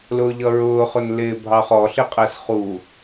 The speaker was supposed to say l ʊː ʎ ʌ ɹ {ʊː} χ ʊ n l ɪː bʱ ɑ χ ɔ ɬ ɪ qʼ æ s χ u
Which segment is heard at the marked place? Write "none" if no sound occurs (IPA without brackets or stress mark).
ʊː